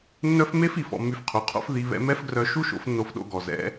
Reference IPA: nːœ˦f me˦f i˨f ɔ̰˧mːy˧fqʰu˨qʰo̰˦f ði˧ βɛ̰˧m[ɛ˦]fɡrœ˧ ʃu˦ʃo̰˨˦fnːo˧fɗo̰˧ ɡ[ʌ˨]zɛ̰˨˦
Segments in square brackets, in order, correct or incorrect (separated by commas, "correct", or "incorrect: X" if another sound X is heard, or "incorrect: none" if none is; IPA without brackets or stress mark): correct, incorrect: ɔ˨